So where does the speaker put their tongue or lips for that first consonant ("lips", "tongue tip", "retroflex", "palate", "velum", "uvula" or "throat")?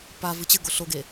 lips